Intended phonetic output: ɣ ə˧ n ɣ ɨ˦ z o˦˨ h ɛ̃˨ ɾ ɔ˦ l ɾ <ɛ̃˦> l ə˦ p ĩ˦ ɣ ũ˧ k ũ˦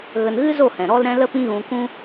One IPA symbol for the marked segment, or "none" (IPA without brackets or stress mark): ɛ̃˦